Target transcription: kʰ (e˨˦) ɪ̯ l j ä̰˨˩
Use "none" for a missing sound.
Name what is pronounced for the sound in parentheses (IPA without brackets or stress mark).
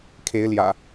e˨˦